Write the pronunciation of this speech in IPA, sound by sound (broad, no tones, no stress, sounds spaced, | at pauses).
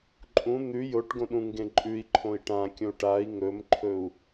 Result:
ǃʼ ũ n̪ ʉ j o ʈ ɡ õ ɗ ũ ŋ ɡ ẽ ǃʼ ʉ i̯ ǃʰ õ i̯ ʈ ã kʲ õ u̯ ʈ a i̯ ŋ ɵ m ǃʰ ɵ u̯